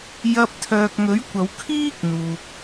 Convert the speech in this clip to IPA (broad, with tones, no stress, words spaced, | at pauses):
jɐ˧p̚t̪ʰœː˨k̚ŋɵ˨˥ɥ kʷɐ˨˧wkʰiː˥k̚n̪uː˨k̚